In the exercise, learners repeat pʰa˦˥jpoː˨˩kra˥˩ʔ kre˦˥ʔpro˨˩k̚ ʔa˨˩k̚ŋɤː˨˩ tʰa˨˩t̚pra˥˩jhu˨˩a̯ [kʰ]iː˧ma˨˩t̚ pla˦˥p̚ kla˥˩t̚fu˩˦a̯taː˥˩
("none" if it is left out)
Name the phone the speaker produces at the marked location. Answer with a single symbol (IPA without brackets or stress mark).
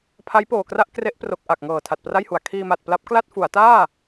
kʰ